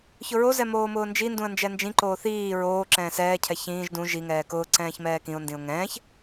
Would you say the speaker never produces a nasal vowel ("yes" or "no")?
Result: no